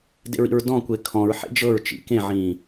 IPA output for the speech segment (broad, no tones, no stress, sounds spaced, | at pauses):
d ḛ ɹ ḭ ɹ d ɔ̃ kʷ e kʰ ɔ̃ ɹ ħ ḛ d͡ʒ ɤ ɹ t͡ʃ ḭ k ẽ ʕ ĩː